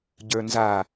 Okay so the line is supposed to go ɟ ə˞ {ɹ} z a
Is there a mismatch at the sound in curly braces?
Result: yes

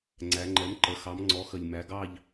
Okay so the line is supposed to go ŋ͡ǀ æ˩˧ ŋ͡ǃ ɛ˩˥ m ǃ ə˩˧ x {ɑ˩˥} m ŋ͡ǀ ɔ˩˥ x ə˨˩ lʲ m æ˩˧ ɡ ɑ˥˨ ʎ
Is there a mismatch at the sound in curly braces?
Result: no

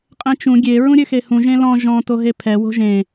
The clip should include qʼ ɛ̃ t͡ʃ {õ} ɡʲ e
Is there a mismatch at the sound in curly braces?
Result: yes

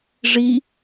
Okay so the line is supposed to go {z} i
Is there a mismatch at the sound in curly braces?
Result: yes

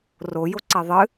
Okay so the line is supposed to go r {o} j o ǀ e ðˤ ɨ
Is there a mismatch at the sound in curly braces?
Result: no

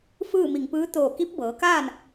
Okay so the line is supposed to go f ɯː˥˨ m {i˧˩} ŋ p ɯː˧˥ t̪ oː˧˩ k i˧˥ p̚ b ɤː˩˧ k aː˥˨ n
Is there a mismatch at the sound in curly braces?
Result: no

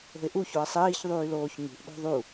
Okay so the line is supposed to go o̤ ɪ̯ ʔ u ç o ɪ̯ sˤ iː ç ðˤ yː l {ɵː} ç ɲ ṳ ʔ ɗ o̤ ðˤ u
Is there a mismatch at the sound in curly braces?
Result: yes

